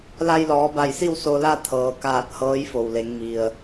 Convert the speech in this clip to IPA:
l a˧ j l ɔː˩˧ b a˧˩ j s i˥˨ w s o˧ l a˥˨ t̪ʰ ɤː˩ k aː˧˩ t̚ h ɤː˧˥ j f o˩ w l e˩˧ ŋ m i˩ ə̯

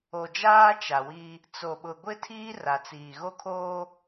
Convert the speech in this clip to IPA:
o˨ d͡ʒ aː˦ t͡ʃ a˨ w i˦ | t͡s o˨ ɓ ʊ˨ ɡʷ ɪ˦ tʰ iː˦ r a˨ t͡s iː˨ ɣ o˦ kʰ oː˦

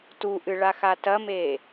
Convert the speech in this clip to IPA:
t u ʔ ɨ ɭ a x a t ɐ m e

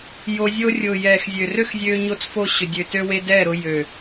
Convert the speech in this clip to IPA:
j o˧ zʲ o˦ rʲ ʊː˨ j ɛː˨ x zʲ ø˨ r ø˦ x zʲ øː˧ ɲ o˦ t͡s f o˦ ɕ ʏ˨ dʲ ø˨ t ø˧ w e˧ d ɛ˦˨ ɾ ʊ˧ j ø˨

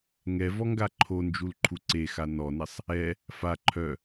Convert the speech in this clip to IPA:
ŋ ɛ v ɔ ŋ ɡ a ǃʰ o n d͡ʒ u l ǃʰ u ǀ e x a n ɔ n ɛ sˤ | ɛ | f a ǃʰ œ

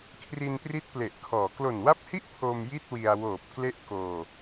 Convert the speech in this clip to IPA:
kʰ r i˧ n p r i˦˥ t̚ p l e˨˩ ʔ kʰ ɔː˩˦ k l o˨˩ n w a˦˥ p̚ h i˥˩ ʔ pʰ o˧ m j i˥˩ t̚ w i˧ a̯ w oː˨˩ p̚ k l e˦˥ ʔ k oː˧

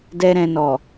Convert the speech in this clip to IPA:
d ɛ˦ ɾ ɛ̃˧ n ɔ˨

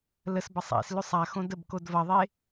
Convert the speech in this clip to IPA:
l ə s b ɐ sˤ ḛ s l ʉ sˤ a x õ d ə b k o d v ɐ ðˤ e

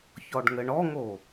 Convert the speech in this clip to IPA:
ç ɔ ɖ ŋ ɘ ɳ ɔ ŋ o

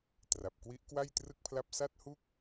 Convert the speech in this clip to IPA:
t r a˨˩ p̚ k w i˦˥ ʔ k w a˥˩ j t r ɯ˥˩ k̚ pʰ l a˥˩ p̚ s a˥˩ t̚ h u˥˩ k̚

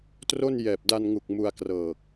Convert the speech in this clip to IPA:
t r o˥˩ n j ɛː˨˩ p̚ d a˧ n ŋ u˨˩ k̚ m u˧ a̯ k r ɤː˨˩ k̚

